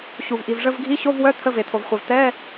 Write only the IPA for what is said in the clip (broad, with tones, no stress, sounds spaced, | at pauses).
ɕ u˩ v ʔ i˩ v ʐ ə˧˥˧ v ɡʱ i˧˥˧ ɕ o˧˥˧ v w œ˧˥˧ t̪ʰ ə˧˥˧ v e˩ t̪ʰ o˩ v χʷ e˩ v t̪ ɛ˧˥˧